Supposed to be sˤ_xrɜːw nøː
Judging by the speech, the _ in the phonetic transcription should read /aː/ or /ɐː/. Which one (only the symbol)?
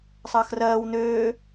ɐː